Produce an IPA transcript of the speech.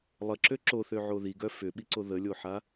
lˠ ə ǁ ø ǁ o θ ø ʕ o ð i ɡ œ f ʏ ɓ i ǀ o ð ə lʲ o ħ a

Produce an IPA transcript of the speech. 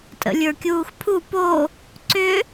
tʼ ə̰ lʲ ə˞ kʲ uː x pʰ u p o | ǀ ʏ

